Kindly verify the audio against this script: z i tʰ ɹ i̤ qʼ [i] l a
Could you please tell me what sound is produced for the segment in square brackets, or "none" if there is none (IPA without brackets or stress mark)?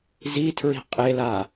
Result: e